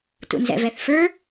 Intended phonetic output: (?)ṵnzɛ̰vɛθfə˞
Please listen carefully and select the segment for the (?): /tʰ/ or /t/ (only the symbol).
t